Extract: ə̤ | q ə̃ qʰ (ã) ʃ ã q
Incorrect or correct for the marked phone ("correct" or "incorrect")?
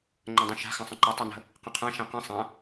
correct